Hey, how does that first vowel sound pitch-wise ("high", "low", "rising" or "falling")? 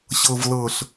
low